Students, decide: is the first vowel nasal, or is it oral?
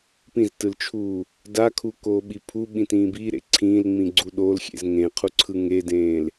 nasal